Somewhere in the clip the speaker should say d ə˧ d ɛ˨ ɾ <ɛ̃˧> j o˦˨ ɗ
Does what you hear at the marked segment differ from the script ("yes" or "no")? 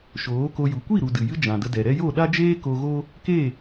yes